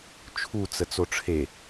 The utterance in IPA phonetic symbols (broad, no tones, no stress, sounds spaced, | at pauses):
t͡ʃʰ u t͡s ə t͡s o ʈ͡ʂʰ e